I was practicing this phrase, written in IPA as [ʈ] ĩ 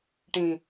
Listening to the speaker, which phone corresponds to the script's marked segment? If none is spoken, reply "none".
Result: ʈ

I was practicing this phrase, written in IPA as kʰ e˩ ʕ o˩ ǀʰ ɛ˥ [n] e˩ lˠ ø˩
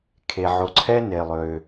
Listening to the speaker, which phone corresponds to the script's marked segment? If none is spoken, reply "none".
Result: n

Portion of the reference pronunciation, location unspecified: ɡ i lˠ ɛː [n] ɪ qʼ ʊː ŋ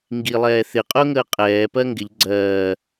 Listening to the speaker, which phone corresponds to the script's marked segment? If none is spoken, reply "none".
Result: θ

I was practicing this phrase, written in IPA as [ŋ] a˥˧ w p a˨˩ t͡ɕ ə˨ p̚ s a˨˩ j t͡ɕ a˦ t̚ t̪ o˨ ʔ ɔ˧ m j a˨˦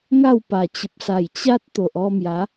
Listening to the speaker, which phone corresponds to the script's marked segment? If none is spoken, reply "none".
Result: ŋ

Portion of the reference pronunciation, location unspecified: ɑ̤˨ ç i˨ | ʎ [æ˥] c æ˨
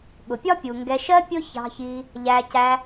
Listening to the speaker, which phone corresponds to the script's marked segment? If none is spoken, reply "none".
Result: æ˨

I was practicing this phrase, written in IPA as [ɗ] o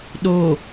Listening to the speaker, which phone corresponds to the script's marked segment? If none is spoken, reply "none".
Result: ɗ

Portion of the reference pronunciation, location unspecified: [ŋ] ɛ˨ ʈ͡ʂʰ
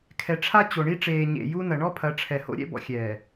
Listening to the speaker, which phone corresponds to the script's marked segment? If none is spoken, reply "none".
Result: kʰ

